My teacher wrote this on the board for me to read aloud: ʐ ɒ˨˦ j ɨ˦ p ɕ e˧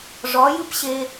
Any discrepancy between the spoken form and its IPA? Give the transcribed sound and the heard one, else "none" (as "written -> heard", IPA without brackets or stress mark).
none